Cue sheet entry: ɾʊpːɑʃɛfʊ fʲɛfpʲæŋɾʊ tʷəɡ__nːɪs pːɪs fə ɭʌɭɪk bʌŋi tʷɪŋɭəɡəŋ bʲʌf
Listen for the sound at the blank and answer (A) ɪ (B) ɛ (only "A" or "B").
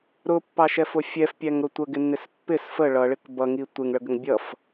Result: A